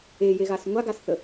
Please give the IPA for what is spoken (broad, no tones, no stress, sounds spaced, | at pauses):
e j e ɣ a s ŋʷ a ɡ a s θ ə